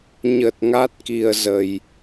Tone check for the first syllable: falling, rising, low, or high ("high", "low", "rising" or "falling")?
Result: low